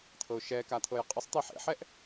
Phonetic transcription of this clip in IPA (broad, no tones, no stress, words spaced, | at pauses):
t̪ʰɤʊ̯ʃɛkat̪ʰɤj qʼəsˤ t̪iħḛħɛʔ